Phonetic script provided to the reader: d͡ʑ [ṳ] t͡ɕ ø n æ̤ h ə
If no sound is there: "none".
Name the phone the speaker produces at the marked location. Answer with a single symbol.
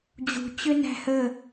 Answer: ṳ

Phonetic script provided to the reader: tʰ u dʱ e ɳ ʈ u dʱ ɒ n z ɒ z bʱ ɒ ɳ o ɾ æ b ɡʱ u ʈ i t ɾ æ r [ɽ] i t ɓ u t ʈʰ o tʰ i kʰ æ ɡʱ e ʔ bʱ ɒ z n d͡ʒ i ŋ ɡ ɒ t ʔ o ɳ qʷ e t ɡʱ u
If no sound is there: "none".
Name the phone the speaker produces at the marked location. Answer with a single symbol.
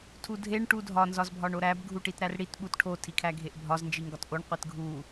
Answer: ɽ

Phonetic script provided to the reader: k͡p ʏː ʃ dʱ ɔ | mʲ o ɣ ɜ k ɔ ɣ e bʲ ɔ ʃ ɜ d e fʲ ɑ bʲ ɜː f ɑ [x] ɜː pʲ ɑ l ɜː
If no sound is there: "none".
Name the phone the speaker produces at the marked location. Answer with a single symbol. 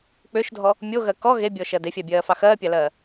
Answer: x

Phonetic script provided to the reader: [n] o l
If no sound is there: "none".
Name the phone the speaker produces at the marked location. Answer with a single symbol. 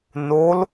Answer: n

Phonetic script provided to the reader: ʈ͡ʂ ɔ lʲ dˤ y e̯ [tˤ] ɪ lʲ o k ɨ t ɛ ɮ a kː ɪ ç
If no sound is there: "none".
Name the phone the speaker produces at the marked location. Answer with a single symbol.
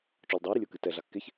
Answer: ɾ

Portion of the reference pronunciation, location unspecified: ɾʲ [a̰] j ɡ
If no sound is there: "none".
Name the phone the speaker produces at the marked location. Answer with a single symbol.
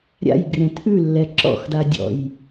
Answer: a̰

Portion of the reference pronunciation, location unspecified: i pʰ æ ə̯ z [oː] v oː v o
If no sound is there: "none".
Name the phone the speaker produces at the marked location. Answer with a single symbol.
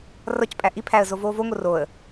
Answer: o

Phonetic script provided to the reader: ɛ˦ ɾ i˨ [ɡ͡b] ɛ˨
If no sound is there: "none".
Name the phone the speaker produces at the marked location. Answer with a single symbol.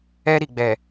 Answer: ɡ͡b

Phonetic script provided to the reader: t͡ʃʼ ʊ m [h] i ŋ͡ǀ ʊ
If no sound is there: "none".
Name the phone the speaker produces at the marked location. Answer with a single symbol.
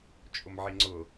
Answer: ʕ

